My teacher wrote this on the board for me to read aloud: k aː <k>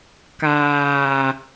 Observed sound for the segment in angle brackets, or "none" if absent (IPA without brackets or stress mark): none